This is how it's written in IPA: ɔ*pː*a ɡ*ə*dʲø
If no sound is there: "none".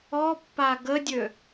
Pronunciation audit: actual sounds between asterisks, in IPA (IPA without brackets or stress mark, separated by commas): pː, ə